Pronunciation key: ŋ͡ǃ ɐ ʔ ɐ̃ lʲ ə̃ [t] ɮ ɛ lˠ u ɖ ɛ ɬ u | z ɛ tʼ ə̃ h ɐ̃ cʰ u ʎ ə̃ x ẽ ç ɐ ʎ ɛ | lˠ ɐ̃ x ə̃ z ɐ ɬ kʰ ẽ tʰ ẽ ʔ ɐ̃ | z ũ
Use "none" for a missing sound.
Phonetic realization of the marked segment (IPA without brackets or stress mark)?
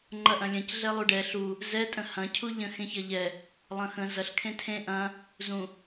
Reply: c